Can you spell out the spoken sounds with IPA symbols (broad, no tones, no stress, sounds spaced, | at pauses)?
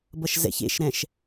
b ʌ ʃ z ɛ̰ ç ḛ ʃ ɾ ɛ̃ ʃ